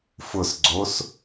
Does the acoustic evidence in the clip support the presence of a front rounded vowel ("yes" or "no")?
no